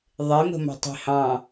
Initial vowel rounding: unrounded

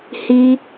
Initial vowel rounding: unrounded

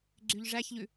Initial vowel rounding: rounded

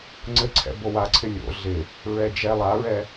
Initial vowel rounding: unrounded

